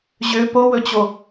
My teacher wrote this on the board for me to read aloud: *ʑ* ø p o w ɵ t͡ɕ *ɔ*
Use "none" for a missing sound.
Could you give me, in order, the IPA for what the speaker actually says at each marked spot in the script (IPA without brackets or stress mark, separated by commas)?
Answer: ʑ, o